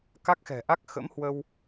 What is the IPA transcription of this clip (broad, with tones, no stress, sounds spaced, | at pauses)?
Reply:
k a˦˥ k̚ x ɛ̤˨˩ ʔ a˦˥ k̚ x ə̰˧˥ m h w ə˧ w